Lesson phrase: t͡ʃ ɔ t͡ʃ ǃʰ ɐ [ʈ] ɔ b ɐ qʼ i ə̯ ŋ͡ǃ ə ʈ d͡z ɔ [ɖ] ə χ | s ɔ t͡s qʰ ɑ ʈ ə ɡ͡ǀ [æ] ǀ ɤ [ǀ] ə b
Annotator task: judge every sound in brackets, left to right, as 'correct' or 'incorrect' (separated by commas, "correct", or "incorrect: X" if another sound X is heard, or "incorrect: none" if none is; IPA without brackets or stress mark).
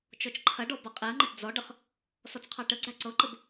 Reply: incorrect: ɖ, correct, correct, incorrect: ǃ